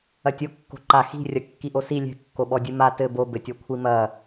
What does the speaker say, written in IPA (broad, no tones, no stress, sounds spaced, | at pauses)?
ɐ tʲ o kː o̤ ǃ a x i̤ rʲ ɐ kː i ʔ o s i lʲ ɛ̤ kː o ɓ ɔ dʲ ɨ m a t ɘ b o b ɘ tʲ ɔ kʷʰ i m ɐ